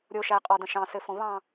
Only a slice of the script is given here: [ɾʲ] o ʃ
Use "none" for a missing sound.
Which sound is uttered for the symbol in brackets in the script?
ɾʲ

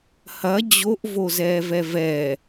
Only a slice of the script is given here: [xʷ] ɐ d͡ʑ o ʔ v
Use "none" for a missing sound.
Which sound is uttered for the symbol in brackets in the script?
h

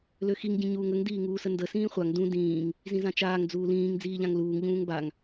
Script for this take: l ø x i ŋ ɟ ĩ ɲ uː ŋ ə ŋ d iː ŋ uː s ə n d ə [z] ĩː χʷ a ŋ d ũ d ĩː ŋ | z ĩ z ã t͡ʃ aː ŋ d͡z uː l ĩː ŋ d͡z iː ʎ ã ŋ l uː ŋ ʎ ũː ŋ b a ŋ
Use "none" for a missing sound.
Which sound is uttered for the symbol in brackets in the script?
s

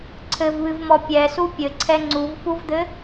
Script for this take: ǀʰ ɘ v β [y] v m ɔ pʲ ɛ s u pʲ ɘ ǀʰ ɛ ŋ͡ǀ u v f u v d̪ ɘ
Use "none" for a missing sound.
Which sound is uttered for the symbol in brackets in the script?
ɨ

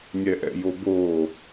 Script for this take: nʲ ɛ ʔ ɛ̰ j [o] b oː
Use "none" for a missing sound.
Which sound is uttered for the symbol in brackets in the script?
o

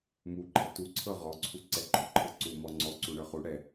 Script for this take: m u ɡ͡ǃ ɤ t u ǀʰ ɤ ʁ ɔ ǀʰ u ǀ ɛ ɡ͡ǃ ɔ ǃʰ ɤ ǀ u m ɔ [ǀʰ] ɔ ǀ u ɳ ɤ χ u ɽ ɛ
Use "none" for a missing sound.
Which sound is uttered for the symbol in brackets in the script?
ŋ͡ǀ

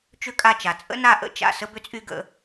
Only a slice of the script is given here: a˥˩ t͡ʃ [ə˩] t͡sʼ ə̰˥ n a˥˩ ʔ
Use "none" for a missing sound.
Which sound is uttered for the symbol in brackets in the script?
a˩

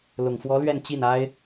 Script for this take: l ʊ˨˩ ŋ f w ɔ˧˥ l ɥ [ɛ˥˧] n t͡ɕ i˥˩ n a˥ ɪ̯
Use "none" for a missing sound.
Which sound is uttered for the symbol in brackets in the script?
ɛ˥˧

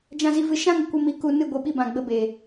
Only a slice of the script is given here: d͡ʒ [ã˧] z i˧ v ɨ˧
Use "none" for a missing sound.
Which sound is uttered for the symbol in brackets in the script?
ã˧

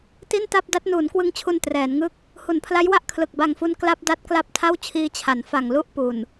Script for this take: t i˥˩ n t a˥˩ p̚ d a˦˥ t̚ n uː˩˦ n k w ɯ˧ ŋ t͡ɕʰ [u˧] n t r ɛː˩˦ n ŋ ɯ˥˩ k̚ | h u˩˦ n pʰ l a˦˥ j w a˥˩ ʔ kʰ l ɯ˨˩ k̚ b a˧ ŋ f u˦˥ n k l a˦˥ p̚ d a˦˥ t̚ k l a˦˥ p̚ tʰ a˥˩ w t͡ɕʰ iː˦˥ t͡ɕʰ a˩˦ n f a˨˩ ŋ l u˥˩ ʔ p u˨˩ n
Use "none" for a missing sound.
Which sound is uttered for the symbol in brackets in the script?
u˧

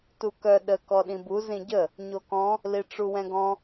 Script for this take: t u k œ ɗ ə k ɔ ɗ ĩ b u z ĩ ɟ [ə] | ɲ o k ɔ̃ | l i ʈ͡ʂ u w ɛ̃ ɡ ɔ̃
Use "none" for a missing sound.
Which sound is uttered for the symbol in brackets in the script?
ə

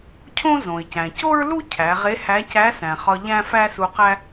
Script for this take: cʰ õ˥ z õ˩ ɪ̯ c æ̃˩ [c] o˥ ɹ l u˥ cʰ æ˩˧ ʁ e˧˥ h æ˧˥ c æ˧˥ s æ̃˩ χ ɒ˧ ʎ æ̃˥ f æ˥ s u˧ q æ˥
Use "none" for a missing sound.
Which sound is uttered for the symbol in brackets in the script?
c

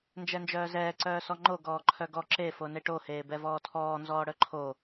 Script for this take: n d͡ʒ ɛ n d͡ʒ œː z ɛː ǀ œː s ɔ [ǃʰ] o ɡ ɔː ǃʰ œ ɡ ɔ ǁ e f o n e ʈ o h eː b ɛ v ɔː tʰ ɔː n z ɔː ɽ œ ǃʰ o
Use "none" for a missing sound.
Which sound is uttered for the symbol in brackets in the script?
ŋ͡ǃ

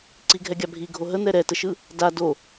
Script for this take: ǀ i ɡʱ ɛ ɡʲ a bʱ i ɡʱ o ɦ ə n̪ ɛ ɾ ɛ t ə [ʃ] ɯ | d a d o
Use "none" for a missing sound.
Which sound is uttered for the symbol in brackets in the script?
ʃ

